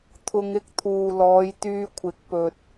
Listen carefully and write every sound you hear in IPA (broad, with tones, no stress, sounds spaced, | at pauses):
t̪ʰ ʊ˧ ŋ ɪ˥ k̚ t̪ʰ uː˨ l ɔː˨˧ j t̪ yː˧ kʷʰ ɪ˨˥ k̚ p ɵ˧ t̚